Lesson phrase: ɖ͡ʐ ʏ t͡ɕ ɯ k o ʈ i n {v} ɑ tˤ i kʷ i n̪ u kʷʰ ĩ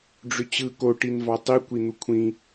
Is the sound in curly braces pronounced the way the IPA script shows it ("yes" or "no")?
yes